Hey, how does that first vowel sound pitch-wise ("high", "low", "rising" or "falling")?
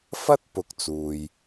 high